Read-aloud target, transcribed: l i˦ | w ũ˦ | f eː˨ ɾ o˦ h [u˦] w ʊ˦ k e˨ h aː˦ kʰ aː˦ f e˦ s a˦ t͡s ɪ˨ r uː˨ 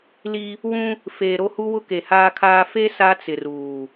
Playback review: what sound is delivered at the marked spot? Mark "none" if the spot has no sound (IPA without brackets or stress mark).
u˦